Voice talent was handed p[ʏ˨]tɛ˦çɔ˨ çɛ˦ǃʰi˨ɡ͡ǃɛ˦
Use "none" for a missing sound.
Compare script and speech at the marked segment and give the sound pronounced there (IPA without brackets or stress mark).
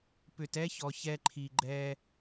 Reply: ʏ˨